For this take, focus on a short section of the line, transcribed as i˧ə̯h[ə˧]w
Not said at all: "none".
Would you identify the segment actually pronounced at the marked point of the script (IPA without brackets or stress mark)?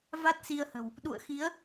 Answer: ə̤˨˩